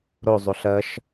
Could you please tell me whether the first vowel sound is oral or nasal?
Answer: oral